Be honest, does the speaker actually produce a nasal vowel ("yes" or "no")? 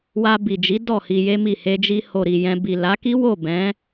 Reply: yes